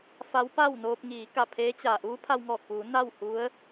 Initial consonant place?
labial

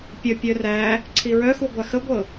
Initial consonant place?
labial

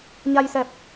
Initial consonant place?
palatal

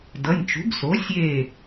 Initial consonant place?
alveolar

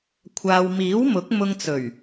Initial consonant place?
velar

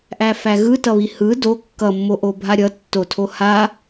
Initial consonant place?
glottal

